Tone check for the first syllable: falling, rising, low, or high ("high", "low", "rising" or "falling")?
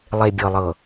low